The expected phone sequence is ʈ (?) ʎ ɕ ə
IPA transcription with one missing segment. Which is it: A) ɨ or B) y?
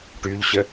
B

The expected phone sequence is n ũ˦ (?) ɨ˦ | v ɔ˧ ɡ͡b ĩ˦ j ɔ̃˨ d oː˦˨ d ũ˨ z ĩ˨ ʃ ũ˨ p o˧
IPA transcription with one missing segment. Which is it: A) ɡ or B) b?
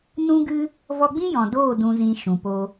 A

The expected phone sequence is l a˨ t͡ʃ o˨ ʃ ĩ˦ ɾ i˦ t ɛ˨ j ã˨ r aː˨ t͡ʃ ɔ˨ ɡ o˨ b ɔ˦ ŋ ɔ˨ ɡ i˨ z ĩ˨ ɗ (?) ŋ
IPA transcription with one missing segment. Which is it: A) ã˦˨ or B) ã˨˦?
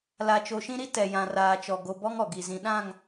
A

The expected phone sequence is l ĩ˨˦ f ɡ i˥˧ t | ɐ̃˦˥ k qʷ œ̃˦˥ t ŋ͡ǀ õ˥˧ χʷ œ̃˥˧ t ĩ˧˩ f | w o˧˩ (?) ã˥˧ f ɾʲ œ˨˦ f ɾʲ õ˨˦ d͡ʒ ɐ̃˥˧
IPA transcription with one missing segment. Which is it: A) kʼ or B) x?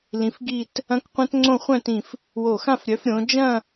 B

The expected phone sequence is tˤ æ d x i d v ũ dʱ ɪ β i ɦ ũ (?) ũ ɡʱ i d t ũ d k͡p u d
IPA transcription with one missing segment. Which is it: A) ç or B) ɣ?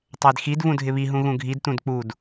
B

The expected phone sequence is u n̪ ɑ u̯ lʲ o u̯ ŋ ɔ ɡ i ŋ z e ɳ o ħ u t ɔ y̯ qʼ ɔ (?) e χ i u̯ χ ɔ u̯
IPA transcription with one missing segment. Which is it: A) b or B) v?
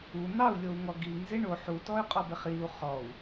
A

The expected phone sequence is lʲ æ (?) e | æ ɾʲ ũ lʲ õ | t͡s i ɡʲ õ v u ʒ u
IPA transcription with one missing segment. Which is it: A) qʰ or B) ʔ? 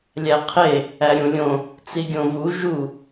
A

